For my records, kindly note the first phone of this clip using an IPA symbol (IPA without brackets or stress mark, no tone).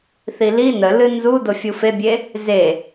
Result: θ